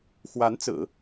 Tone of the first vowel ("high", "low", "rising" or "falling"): rising